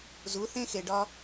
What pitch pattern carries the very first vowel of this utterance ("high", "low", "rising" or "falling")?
rising